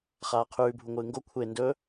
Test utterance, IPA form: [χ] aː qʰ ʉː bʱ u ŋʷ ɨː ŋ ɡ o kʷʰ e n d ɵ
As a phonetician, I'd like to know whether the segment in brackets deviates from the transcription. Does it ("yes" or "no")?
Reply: no